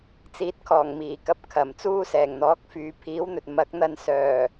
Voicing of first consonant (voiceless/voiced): voiceless